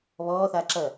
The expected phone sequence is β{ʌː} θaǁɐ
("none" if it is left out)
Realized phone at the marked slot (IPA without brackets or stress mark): ɔː